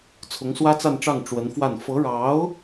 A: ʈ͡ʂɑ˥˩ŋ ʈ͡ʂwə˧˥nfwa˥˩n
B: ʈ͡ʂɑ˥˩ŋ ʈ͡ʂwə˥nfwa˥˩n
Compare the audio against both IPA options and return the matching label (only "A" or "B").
A